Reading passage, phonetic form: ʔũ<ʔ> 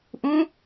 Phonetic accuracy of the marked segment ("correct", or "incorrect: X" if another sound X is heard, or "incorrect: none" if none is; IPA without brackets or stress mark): incorrect: none